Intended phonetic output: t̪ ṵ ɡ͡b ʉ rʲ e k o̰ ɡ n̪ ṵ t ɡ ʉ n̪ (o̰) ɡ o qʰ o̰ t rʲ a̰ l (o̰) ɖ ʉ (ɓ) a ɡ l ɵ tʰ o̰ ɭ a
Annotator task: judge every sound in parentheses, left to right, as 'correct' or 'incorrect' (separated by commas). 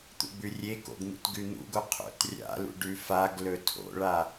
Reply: incorrect, incorrect, incorrect